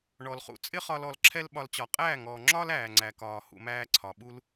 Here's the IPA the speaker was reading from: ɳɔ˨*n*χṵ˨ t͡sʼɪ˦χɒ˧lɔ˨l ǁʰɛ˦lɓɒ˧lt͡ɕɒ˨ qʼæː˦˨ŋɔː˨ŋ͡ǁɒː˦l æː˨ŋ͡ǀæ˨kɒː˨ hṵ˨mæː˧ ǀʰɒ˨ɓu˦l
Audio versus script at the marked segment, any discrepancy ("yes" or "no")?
yes